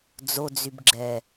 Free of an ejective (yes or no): yes